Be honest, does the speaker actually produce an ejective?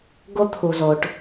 no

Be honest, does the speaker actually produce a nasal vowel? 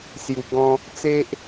yes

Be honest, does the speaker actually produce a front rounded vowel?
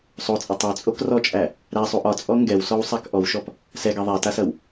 no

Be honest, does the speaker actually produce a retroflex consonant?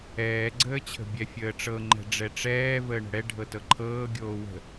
yes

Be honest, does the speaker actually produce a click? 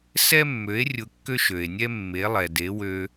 no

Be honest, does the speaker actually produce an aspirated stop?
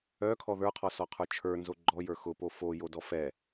yes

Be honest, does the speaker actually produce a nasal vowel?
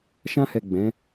yes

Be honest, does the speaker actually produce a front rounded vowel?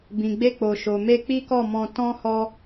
no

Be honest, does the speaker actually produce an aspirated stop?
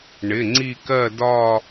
no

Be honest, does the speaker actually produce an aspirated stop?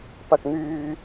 no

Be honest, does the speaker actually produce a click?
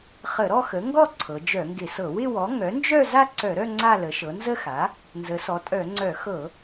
yes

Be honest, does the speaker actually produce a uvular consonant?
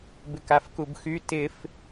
no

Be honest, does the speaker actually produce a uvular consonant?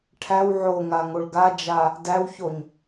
no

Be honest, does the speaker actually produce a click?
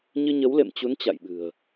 no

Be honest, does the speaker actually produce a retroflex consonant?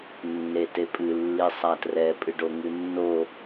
yes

